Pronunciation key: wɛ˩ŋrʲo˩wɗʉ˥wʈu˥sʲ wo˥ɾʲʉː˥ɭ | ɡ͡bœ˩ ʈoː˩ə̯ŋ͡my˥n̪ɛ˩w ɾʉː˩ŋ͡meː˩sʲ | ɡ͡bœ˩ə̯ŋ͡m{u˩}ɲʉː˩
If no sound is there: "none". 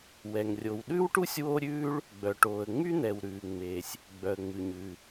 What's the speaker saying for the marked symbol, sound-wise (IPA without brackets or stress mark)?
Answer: ʉ˩